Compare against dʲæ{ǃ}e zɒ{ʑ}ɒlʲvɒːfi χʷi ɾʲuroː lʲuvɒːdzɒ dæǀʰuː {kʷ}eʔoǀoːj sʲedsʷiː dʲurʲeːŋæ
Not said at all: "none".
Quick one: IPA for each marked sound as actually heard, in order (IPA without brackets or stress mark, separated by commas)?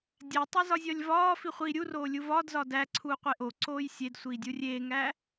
tˤ, zʲ, qʷ